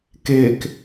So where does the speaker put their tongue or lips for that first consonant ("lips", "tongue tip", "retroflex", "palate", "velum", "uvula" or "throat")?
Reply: velum